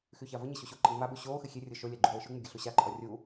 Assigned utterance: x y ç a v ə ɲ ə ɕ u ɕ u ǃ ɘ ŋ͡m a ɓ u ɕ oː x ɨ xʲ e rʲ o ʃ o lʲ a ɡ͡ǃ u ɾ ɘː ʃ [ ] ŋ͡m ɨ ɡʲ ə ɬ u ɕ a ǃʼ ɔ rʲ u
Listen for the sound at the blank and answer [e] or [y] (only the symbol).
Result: y